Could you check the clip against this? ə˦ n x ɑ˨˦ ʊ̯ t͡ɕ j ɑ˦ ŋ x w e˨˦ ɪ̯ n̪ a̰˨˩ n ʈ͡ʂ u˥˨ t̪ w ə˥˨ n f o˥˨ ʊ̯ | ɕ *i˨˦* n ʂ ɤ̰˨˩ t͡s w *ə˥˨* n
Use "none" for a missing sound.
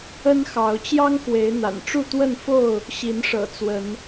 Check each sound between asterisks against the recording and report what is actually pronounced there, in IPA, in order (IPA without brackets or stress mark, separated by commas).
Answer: i˨˦, ə˨˦